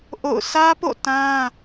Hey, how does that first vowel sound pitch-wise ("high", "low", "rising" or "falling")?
falling